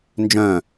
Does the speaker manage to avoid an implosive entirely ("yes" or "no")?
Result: yes